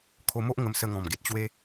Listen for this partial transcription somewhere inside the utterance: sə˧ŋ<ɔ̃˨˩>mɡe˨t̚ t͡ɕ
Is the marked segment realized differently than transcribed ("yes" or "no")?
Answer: no